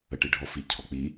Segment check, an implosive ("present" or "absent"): absent